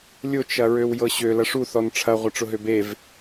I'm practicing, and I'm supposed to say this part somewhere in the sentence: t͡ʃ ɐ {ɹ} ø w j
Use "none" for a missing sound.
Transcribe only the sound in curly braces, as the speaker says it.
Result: ɹ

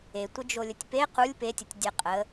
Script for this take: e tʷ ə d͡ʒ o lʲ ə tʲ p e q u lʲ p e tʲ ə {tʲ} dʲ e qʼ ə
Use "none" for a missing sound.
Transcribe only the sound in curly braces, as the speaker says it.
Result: tʲ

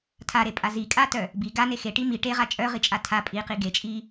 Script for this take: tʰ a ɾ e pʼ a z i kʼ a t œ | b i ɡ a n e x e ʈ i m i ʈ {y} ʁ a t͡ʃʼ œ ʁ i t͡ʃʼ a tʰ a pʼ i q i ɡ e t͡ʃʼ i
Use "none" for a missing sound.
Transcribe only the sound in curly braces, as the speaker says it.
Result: e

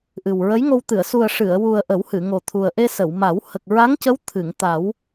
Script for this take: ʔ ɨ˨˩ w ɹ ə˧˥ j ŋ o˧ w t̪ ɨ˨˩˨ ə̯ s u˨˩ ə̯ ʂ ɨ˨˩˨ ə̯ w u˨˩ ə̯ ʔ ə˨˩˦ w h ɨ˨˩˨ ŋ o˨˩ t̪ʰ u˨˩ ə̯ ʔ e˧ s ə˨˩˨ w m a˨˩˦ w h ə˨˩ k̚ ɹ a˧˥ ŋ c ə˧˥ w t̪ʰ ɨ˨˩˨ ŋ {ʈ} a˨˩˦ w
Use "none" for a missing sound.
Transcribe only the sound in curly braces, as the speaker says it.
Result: t̪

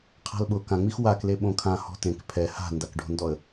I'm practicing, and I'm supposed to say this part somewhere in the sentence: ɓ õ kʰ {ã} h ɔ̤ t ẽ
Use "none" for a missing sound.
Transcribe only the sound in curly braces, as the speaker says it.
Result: ã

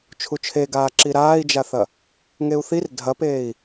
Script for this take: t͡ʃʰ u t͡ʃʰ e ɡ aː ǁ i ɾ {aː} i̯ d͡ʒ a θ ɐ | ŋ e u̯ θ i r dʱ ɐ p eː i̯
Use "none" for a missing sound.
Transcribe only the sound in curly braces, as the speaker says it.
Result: aː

